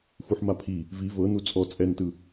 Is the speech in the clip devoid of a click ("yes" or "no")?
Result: yes